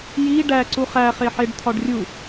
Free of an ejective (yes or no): yes